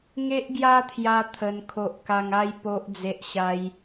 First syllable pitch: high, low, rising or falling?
high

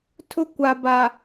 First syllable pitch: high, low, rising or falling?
high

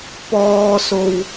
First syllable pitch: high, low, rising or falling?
high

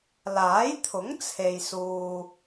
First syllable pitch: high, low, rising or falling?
rising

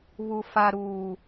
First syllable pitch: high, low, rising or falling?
low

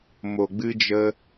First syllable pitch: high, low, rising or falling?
low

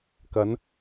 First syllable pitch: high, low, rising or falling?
rising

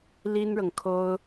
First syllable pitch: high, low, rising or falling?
high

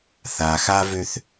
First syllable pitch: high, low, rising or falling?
low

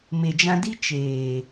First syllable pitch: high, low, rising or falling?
low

